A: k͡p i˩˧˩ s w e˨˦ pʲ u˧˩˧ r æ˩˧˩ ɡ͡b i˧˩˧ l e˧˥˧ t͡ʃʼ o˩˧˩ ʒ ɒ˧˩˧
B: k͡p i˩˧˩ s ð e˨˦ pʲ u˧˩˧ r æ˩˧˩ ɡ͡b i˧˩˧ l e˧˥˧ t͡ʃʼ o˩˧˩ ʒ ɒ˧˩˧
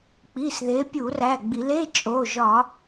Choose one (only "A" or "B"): B